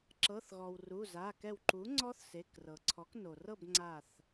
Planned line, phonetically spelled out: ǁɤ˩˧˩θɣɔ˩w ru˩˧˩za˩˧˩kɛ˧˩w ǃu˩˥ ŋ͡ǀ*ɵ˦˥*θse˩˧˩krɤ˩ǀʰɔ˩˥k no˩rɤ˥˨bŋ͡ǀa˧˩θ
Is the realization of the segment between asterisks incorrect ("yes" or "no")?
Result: yes